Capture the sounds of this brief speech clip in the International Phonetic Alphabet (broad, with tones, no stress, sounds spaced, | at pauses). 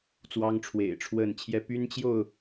t͡s w ɑ˦ ŋ ʈ͡ʂʰ w ḛ˨˩ ɪ̯ ʈ͡ʂʰ w ə˥˨ n t͡ɕʰ j ɛ˦ p y˦ n t͡ɕ j o˥˨ ʊ̯